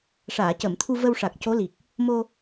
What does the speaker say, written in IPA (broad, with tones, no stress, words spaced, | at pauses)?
ʂaː˨˩˨cə˨˩˨mt̪ʰu˧ və˧wʂa˨˩k̚ co˧˥li˨˩k̚ | mo˧